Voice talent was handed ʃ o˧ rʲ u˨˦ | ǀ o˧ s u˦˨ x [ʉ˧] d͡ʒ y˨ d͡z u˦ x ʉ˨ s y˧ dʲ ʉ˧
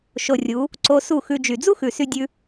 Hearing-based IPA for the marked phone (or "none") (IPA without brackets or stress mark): ʉ˧